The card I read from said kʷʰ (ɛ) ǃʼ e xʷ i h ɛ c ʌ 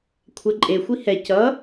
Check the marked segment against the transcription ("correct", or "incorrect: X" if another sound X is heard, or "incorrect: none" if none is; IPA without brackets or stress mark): correct